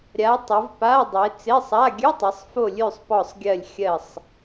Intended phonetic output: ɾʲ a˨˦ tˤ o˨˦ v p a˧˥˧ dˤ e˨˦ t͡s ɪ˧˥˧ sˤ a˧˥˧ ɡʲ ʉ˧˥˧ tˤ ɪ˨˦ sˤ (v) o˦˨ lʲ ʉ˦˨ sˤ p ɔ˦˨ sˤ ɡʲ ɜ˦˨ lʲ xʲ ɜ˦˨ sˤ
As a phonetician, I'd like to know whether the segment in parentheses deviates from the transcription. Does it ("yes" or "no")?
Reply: yes